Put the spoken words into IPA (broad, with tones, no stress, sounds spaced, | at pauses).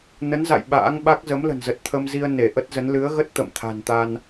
n ə˨˦ n z a̰˧˨ j ɓ a̰ː˧˥ ŋ ɓ a˦˥ k̚ z ə˨˦ m l ə̤˨˩ n z ə˨˩ t̚ t̪ʰ ə˧ m z i˧ ə̯ n e˧˩ ʔ ə˦˥ t̚ z ə˨˦ n l ɨ˨˦ ə̯ ɣ ə˦˥ t̚ t̪ ə̰˧˨ m t̪ʰ a̤˨˩ n t̪ a˧ n